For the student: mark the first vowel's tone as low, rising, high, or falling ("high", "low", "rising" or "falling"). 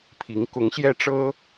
rising